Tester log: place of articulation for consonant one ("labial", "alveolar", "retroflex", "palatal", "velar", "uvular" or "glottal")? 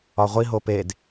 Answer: uvular